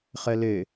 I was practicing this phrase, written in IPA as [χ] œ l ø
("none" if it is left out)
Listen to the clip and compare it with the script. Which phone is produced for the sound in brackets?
χ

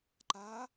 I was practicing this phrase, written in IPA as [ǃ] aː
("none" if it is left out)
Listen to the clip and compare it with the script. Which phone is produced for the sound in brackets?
ǃ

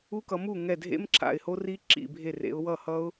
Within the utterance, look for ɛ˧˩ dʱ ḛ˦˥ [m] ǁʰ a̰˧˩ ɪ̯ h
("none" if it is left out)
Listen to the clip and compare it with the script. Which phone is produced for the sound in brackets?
m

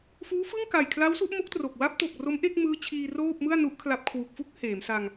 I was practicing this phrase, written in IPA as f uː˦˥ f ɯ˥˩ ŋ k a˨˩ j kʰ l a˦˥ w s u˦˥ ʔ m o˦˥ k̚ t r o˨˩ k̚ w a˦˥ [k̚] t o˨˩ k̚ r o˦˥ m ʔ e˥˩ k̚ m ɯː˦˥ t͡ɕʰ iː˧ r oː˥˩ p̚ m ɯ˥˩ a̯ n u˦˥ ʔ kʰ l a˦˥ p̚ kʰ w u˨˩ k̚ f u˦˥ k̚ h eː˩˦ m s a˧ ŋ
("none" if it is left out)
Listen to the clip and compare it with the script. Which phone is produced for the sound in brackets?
p̚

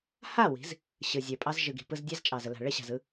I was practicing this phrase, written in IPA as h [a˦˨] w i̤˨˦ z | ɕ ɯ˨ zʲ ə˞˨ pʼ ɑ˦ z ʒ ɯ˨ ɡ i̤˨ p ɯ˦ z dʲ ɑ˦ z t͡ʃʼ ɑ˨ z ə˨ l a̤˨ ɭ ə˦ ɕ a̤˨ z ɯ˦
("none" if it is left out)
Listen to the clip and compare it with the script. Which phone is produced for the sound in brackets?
a˦˨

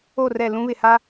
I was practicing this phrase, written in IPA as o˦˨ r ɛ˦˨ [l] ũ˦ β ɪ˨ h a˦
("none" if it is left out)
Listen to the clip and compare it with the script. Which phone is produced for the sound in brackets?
l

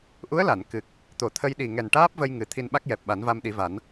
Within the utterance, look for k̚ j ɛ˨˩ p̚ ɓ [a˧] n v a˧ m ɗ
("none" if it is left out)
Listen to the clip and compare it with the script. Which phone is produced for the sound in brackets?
a˨˩˦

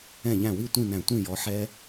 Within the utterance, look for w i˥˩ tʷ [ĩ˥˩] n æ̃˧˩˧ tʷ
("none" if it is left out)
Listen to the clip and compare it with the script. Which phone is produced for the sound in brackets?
ĩ˥˩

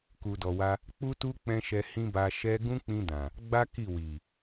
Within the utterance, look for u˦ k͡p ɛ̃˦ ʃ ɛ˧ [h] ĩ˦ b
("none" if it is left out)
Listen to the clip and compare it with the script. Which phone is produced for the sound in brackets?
h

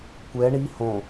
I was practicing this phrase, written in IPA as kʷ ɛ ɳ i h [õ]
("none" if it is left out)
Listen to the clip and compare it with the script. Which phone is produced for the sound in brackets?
õ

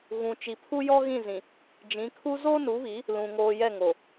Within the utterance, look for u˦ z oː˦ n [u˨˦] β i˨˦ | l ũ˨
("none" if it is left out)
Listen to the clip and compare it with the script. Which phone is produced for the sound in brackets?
u˨˦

